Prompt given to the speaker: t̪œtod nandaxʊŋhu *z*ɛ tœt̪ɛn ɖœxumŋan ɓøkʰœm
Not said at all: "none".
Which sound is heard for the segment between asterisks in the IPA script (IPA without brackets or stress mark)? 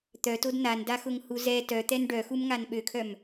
z